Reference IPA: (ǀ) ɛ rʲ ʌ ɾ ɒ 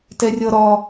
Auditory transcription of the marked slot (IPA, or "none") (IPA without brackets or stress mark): t